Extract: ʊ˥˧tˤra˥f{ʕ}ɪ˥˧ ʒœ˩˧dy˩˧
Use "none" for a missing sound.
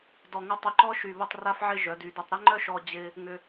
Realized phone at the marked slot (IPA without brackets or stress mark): ʕ